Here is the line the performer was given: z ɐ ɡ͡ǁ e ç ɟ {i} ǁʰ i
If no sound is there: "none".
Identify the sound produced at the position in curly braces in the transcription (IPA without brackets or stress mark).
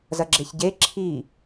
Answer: e